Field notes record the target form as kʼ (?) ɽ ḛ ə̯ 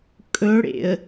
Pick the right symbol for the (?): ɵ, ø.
ɵ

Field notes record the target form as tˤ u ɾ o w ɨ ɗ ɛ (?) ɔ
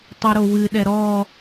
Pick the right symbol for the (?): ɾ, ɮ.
ɾ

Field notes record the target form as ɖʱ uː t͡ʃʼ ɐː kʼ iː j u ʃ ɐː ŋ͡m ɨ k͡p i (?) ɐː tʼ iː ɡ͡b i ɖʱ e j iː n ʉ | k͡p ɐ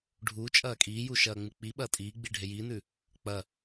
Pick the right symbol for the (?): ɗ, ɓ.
ɓ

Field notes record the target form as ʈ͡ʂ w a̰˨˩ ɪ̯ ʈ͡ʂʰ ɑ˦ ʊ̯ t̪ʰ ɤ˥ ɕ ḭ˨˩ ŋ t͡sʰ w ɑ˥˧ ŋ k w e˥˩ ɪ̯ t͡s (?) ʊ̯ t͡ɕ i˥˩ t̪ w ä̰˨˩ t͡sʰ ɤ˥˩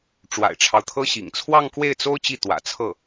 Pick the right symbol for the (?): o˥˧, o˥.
o˥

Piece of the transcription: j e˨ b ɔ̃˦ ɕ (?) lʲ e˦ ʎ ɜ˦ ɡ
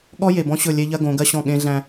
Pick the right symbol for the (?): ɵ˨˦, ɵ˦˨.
ɵ˦˨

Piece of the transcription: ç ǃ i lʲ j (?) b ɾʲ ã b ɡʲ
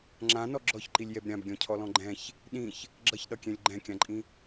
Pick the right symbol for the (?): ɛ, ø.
ɛ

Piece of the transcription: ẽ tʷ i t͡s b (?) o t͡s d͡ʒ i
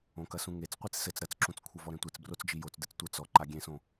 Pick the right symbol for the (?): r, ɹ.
r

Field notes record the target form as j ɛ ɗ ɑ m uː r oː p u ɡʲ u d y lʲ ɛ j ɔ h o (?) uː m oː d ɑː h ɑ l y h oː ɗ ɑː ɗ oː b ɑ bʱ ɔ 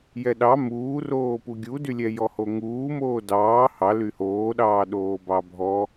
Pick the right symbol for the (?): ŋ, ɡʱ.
ŋ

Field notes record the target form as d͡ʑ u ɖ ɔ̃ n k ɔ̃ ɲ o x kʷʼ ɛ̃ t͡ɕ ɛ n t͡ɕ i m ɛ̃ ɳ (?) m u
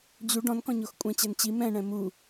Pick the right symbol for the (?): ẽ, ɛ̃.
ɛ̃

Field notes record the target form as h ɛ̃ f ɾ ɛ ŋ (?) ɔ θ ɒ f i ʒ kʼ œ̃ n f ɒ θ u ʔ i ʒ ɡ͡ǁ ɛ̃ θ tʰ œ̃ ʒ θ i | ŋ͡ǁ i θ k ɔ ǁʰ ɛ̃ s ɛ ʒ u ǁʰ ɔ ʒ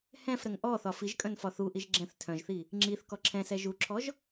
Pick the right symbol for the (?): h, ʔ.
ʔ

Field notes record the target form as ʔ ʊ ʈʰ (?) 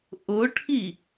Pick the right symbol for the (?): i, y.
i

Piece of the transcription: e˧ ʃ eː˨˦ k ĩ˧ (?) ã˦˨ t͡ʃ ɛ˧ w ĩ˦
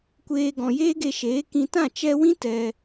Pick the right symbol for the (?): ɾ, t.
t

